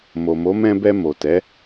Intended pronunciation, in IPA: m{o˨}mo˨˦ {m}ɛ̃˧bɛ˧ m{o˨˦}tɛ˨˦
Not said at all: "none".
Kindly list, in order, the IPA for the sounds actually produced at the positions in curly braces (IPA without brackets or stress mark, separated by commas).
o˨, m, o˨